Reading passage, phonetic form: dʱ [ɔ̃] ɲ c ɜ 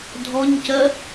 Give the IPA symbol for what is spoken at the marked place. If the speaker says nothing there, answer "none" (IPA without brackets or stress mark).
ɔ